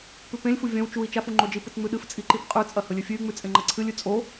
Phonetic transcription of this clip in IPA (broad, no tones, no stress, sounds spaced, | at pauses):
p ʉ p ẽ lʲ f u vʲ ɐ̃ w t͡ʃ u i̯ t͡ʃ a f u ŋ͡ǃ o d͡ʒ i p ɨ t͡s ŋ͡m ʉ ɗ ɨ f t͡sʼ i ǃ i p qʼ ʉ t͡sʼ ɐ h ɵ lʲ ɨ fʲ ʉ y̯ ŋ͡m ʉ t͡sʼ ẽ ŋ͡ǃ ɐ ǀʰ ɨ lʲ ʉ t͡sʼ o